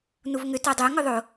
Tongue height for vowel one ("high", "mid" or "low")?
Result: high